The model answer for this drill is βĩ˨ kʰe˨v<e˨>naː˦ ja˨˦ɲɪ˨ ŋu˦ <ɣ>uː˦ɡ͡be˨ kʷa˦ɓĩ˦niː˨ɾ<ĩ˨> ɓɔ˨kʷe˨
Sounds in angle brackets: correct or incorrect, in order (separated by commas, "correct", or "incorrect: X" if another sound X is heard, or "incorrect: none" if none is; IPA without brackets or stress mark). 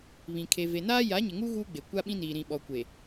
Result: correct, correct, correct